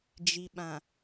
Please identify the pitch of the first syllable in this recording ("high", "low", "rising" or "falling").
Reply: low